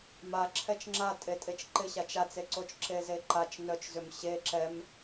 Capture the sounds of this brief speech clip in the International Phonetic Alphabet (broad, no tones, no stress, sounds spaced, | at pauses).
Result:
m a ǁʰ ɛ t͡ʃ ŋ͡ǁ a tʼ e tʼ e t͡ʃ ǃ ɪ ɕ a t͡ʃ a t͡s e ǀ o t͡ʃ ǁ e z e ǃ a t͡ʃ n œ t͡ʃ z ʏ m ɕ e ǁ ɛ m